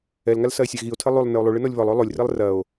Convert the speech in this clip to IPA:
ɛ l ŋ a l s ɐ e̯ sʲ a ɣ i o̯ tʰ ɘ lˠ u lˠ n ɘ o̯ lˠ u ɭ ɨ n ɔ lʲ β ɔ lˠ o lˠ o lʲ r i lˠ r ɐ o̯

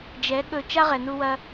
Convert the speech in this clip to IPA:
d͡ʒ ɛ˨˦ ɠ ɵ˧ t͡ʃ a˦ ʁ ɛ˨ n u˧ w ɐ˧

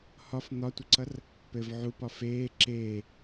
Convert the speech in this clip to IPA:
h ɒ f n̪ ɒ tʷ ə ǀ ʌ r | p ɘ v ʕ u p ɒ f eː ǁ eː

